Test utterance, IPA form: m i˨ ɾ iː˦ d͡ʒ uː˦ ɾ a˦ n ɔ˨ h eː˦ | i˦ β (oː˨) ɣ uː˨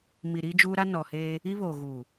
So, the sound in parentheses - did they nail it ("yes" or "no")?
yes